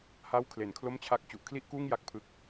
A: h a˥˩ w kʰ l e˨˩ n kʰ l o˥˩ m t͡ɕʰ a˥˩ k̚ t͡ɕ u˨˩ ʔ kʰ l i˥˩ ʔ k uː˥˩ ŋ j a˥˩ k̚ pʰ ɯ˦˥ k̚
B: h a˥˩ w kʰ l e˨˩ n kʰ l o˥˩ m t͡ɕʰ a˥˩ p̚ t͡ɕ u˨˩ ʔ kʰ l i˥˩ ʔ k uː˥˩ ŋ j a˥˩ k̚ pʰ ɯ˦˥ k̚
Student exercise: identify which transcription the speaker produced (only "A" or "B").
A